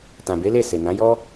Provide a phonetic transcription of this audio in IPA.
tã˨be˨˦le˦˨ se˨nã˨˦jɔ˦

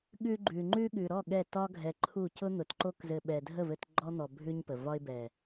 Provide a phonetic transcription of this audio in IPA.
ɠʉ˧ ɡ͡ǃʉ˨ ŋ͡ǃʉ˧ ɠʉ˨ɾɔ˦˨ ɠɛ˦˨tɒ˦ɡʱɛ˧ǃʰu˦˨ cʊ˦n̪ʊ˨t ǃo˧kzɘ˨ɓɛ˨ dʱə˦˨vɘ˧t ɡ͡ǃɔ˧ n̪ɔ˨ bʱʉ˦ɲpə˨ vɒ˧ɪ̯bɛ˨

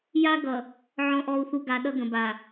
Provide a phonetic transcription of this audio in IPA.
ja˦ ɡʌ˨ | ʕɔ̃˨ʔɔ˨u̯θu˨ ɡa˨ ɗʌ˦ɡə̃˨ba˨

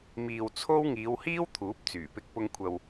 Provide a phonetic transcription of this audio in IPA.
miː˨w t͡sʰo˥w ŋiː˨˧whiː˥w t̪ʰuː˨˥p̚t͡syː˨˩pɪ˧k̚ pʊ˧ŋkʷʰɐ˨w

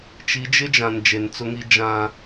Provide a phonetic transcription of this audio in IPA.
t͡ʃi˨˦d͡ʒɪ˦d͡ʒã˨n d͡ʒe˨nt͡sʊ˦ŋi˦ d͡ʒã˦

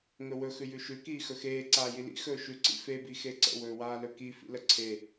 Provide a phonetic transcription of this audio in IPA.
ŋɵwɵ xʉjʉʃʉ kiːxɵxeː ǀaːjilḭ xɵːʃʉ ǀḭfe bixeǀə̰ wɵːwaːlɵki fḭləǀʰe

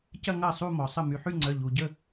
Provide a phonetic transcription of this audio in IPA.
cɐ˥˧ŋɐ˥˩ sˤu˥˧mɔ˩ sˤə˥˩ my˩ħy˥˧ŋ͡ǀœ˩˧˩ ʎu˩ ɟə˥˩

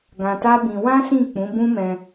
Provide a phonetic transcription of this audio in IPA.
ɡã˧ta˦bĩ˧ wã˦ sĩ˦˨k͡pũ˨˦bũ˦mɛ̃˧

